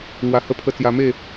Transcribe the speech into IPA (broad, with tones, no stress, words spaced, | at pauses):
ŋwa˧hə˦pʰə˦ t͡sja˧me˥˧